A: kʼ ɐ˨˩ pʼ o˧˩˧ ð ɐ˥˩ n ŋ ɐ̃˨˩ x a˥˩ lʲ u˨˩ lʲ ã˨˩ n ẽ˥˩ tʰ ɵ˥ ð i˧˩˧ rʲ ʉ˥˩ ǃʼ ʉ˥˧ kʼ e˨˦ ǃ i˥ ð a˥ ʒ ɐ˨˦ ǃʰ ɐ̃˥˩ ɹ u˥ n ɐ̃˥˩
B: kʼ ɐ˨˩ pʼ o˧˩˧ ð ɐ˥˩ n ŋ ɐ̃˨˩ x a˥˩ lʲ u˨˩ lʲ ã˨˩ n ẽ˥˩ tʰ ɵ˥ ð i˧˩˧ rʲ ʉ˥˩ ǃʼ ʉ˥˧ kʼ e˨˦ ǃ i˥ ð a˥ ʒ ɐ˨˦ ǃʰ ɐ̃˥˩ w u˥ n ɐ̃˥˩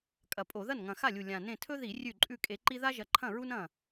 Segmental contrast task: A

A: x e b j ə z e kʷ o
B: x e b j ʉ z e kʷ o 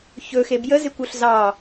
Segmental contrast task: A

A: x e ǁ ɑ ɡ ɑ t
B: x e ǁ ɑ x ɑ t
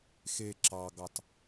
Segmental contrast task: A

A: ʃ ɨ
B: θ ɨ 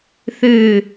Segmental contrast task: B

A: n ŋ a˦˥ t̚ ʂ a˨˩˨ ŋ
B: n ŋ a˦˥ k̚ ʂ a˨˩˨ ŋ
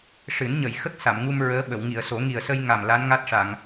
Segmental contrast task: A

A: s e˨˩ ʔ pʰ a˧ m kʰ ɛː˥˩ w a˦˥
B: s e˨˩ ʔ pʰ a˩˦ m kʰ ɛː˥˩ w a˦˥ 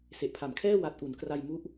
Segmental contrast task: B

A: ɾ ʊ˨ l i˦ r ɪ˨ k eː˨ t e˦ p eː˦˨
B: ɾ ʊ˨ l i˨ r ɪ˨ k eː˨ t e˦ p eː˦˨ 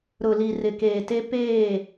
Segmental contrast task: B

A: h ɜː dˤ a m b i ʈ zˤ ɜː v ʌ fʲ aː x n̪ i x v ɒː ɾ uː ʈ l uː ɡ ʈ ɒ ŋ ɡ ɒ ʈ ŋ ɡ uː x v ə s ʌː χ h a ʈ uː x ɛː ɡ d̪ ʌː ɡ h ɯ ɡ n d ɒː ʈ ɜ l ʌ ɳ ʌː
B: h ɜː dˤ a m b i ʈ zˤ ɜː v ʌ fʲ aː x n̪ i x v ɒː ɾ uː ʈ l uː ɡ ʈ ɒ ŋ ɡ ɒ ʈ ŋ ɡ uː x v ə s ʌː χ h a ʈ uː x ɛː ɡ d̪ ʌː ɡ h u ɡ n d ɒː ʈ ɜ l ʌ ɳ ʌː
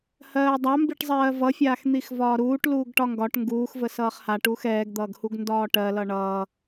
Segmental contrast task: B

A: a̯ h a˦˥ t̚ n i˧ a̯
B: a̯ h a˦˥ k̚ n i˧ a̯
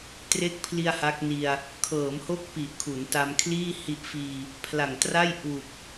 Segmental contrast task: B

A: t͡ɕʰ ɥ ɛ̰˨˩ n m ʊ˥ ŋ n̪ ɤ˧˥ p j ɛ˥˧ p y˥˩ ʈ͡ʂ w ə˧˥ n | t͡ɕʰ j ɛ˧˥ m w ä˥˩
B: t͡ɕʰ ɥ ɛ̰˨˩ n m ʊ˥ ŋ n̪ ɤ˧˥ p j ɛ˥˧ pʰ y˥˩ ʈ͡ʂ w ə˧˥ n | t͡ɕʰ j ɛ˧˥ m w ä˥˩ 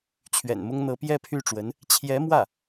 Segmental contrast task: B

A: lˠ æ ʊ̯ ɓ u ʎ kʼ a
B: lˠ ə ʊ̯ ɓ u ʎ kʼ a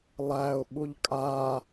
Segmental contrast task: A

